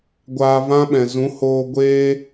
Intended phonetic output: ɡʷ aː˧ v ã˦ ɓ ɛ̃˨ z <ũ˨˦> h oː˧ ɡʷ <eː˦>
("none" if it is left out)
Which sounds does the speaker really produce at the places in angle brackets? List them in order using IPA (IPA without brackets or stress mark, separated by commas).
ũ˨˦, eː˦